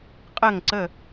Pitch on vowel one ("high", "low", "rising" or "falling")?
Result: falling